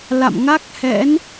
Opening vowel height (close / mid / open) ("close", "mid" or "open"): open